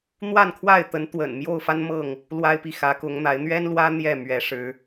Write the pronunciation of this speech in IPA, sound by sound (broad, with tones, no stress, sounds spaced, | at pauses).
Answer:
n̪ w a˥˨ n kʰ w a˥˨ ɪ̯ t̪ ə˨˦ n t̪ w ə̰˨˩ n m j o˥˨ ʊ̯ f a˦ n m ɤ˥˨ ŋ | l w a˦ ɪ̯ p i˨ x ä˨˦ k ʊ˨˦ ŋ n̪ a˨˦ ɪ̯ n̪ ɥ ɛ˦ n l w ä˦ n̪ j ɛ˥˨ m ɥ ɛ˨˦ ʂ ɻ̩˨˦